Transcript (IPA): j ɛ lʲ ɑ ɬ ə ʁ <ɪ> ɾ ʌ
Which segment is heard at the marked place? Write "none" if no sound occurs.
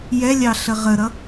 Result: ə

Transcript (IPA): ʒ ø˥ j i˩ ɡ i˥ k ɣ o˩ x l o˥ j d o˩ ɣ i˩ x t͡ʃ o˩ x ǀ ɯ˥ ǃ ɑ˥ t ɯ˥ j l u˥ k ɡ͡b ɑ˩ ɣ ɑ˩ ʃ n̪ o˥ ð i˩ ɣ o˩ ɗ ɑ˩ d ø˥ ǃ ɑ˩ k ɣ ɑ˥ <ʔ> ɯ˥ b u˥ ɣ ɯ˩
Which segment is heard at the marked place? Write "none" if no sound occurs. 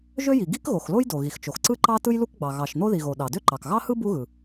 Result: h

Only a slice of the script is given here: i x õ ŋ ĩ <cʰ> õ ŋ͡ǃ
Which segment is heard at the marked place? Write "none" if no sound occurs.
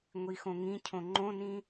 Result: cʰ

